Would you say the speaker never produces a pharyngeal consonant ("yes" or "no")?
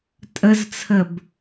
yes